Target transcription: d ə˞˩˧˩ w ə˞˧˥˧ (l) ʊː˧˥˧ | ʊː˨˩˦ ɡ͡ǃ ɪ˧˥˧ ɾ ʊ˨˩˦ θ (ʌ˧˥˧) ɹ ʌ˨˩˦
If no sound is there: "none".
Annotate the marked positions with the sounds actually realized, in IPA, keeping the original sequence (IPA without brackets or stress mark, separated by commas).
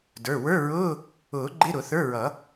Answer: ɹ, ə˞˧˥˧